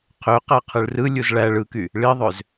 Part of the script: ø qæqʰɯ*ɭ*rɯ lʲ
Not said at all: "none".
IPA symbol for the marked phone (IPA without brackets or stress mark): ɭ